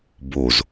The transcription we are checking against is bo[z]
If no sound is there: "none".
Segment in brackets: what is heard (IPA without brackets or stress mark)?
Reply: z